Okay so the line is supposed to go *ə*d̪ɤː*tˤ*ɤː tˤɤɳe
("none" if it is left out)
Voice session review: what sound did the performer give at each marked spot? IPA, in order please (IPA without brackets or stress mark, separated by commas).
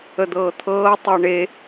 ə, t̪ʰ